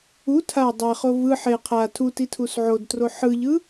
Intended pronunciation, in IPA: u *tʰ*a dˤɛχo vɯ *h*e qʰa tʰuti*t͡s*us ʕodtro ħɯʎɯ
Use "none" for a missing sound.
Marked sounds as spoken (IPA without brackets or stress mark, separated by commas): tʰ, ħ, tʰ